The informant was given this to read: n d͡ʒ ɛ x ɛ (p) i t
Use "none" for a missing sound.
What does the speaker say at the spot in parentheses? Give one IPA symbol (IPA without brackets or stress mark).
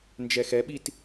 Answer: ɓ